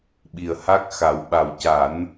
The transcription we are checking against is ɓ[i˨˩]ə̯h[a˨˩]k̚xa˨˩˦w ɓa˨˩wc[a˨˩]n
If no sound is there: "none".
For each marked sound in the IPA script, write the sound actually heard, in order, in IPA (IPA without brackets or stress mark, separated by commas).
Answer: i˨˩, a˦˥, a˨˩˦